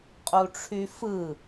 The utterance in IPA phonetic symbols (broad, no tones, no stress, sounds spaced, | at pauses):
qʼ u ʈ͡ʂʰ y f ɯ